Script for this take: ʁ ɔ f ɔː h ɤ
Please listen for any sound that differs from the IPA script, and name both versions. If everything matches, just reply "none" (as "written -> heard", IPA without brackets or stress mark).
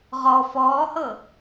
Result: none